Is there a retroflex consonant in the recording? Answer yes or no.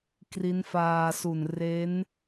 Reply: no